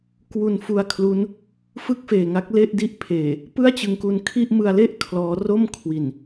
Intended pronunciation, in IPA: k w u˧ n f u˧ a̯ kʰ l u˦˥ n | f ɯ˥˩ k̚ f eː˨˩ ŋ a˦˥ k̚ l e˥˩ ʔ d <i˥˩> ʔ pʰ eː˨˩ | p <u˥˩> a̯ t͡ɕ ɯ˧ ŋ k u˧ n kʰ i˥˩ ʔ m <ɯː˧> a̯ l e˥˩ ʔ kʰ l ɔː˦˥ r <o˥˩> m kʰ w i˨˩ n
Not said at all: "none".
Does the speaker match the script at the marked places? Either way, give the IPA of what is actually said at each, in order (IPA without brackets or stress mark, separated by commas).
i˥˩, ɯ˥˩, ɯ˧, o˥˩